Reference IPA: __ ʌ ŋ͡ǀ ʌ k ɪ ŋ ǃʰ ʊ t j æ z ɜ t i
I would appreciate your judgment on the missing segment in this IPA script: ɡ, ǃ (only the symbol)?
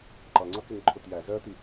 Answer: ǃ